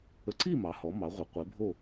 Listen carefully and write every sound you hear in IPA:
ə˨˥ ǀ i˥˨ m ɑ˩˧ h ɔ˩˧ m ɑ˩˧ ʁʷ ə˩˧ qʷ e˨˥ bʱ o˥˨

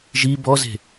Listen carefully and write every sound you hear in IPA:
ʒ i b ɔ z e̤

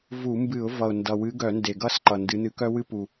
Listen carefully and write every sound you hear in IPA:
v u˧˩˧ m b ɨ˧˩˧ ʊ̯ v ʌ˨˩ ʊ̯ n d ʌ˨˩ w ɨ˨˦ ɡ œ˧˩˧ n d e˨˩ ɡ ʌ˥˩ s ǃ ʌ˨˩ n d ɨ˨˦ n ɨ˨˦ k œ˦ w ɨ˦ p u˨˩

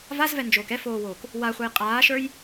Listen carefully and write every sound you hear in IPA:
v a z v ɛ n d͡ʒ oː k ɛ f oː w oː k | w a χʷ ə˞ j qʼ aː ʃ ə˞ j

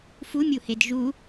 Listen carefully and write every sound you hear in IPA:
f u mʲ u h e d ʒ u

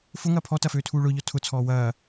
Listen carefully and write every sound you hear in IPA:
f ʊ ŋ ɐː pʰ ɔ t ɐ f øː tʰ uː ɭ ʊː ʎ ɔ tʰ ʊ t͡sʰ ɔː w ɐː

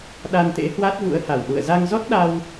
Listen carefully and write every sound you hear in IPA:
ɗ a˧ n t̪ ḛ˧˥ h w a˦˥ t̚ v ṵ˧˥ ə̯ h a˧˩ w ɗ ṵ˧˨ ə̯ z a˧ ŋ z ɔ˦˥ t̚ ɗ a˧ w

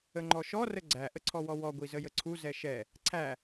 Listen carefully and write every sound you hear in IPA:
ə ŋ͡ǃ ɔ ʃ ɔ r ə ɡ͡ǀ æ ʔ ə ǀʰ ɔ w ɔ w ɔ ɡʷ i z ə j ə ǀʰ u z ɛ ʃ ɛ | ǀʰ æ

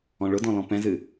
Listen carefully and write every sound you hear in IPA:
ɔ̃ ɭ ʊ d ɔ̃ l ɔ̃ p ɛ̃ z ɨ

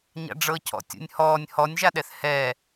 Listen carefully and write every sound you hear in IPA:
ɲ a̰ ɖ͡ʐ ɤ cʰ ɔ̰ tʲ ṵ nʲ h ɔː nʲ h ɔ nʲ ʒ a ɗ ɛ θ h ɛ

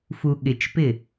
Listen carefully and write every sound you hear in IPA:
f u ɠ ɪ t͡ʃ p ɪ

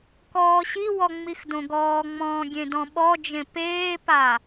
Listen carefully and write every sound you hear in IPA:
k ɔː ɕ i w ɔ ŋ͡m i x d õ ɡ ɔː ŋ͡m ɔ̃ː ɡʲ ẽ d ɔ̃ ɓ ɔ d͡ʒ ẽ p eː p a

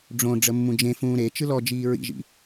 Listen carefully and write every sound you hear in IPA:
ɖ͡ʐ õ ɖ͡ʐ ə mː ũ d͡ʒ ẽ f ũː ɾ e t͡ʃ ɯ l ɔ d͡ʒ iː ɹ ḭ ʒ ḭ

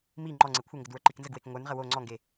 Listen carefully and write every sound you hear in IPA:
m i ŋ͡ǃ ɔ ŋ͡ǀ e kʷʰ ə ŋ ɡ ə d w ə˞ ǃ i k n z ə ɡ w e k ŋʷ ə˞ n ʁ ə w o ŋ͡ǀ ɔ ŋ ɡ e

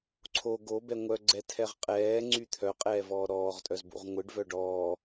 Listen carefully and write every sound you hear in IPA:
ǀʰ o ɡ o b ɛ ŋʷ œ ɡ͡ǀ ɛ tʰ ɛ ʁ qʼ ɛː ŋ͡ǀ y t̪ʰ œ qʼ ɛː v ɔː ɾ ɔː ʁ tʼ œ z b ṵ ʁ ŋʷ ɯ ɖ v œ ɖ ɔː

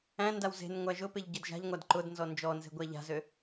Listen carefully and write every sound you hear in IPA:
æ̃ n d a w z e̤ n ŋʷ æ ʒ ʊ p e ʎ ɟ ø d ʒ a̤ ʎ ŋʷ a d ǃ ʊ d n z ɔ n d͡ʒ ɔ n z e̤ ɡʷ æ ʎ a̤ z ø

